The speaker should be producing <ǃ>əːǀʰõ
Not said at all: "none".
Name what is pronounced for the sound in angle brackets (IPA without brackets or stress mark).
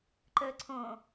ǃ